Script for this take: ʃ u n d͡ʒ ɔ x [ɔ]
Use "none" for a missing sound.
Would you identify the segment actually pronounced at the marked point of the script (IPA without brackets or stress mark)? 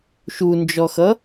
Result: ʌ